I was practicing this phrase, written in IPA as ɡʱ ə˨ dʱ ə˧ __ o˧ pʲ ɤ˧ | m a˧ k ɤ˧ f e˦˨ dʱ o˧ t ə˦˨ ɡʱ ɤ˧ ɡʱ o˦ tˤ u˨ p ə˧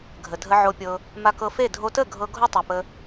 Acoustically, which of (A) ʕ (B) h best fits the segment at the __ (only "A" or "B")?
A